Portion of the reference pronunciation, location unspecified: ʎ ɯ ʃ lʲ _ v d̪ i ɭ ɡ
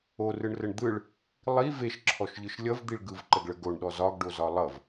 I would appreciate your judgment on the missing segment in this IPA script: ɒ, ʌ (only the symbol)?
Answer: ʌ